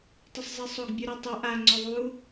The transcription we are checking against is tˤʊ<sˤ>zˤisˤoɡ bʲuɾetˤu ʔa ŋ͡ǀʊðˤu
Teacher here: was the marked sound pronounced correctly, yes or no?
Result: yes